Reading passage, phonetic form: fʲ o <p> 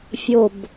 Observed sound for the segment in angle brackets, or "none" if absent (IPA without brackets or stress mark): b